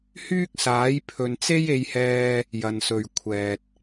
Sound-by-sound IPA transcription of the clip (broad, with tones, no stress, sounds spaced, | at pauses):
h yː˥ k̚ s aː˨˥ j pʰ ɵ˨ n t͡s e˥ j e˧ j h ɛː˧ | j ɐ˨ n s ɵ˨ ɥ kʷʰ ɛː˨ t̚